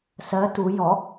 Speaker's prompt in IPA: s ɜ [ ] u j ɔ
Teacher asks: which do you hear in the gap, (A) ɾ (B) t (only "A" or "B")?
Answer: B